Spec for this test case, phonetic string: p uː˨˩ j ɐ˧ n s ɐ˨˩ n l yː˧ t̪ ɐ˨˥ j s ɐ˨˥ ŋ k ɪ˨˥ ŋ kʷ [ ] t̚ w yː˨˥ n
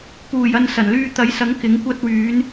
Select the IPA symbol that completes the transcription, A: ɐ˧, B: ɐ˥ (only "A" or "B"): B